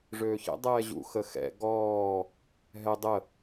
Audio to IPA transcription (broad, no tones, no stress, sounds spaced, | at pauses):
ʐ øː ç ɛ̰ dˤ ɛː ʑ ṵ x ə x ɛ̰ ɡ ɔː | ɦ ɛ dˤ ə